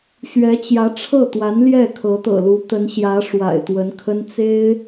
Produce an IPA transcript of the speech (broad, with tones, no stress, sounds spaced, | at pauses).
ɕ ɥ ɛ˧˥ t͡ɕ j ä˧˥ ʈ͡ʂʰ ɤ˥˩ t̪ w a˧˥ n l j ɛ˥˩ kʰ ɤ˧˥ t̪ ɤ̰˨˩ l u˧˥ t̪ ə˧˥ n ɕ j ä˧˥ ʂ w a̰˨˩ ɪ̯ t̪ w ə˧˥ n kʰ ə˥ n t͡s e˥ ɪ̯